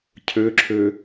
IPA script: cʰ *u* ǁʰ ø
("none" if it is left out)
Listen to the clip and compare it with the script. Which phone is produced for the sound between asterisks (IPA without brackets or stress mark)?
ø